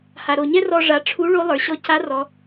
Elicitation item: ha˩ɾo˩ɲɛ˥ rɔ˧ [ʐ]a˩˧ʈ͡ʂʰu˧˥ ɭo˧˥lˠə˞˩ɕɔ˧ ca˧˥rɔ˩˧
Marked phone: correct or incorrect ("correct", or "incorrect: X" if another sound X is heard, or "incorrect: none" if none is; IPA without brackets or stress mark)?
correct